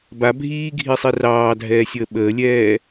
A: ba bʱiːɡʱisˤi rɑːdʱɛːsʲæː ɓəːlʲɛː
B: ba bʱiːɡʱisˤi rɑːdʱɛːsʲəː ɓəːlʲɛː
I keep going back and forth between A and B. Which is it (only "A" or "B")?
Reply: B